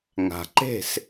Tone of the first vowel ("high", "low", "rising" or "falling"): low